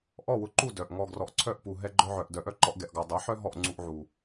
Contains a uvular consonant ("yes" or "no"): no